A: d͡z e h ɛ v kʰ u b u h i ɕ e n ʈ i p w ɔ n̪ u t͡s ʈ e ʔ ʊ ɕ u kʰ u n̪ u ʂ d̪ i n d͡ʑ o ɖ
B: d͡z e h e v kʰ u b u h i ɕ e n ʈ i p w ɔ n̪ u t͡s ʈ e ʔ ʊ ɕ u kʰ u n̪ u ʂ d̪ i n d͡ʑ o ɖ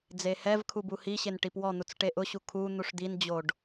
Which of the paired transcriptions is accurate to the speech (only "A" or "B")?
A